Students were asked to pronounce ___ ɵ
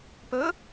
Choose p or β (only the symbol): p